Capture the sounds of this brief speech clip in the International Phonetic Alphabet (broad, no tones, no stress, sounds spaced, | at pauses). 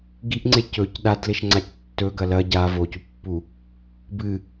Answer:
ɡ i ʔ ŋ͡ǀ e c ɵ c ɗ a d l e ʃ ŋ͡ǀ a c tː ɵ ɡ ɐ l ɐ ɟ a v o c u pː u | b ɨ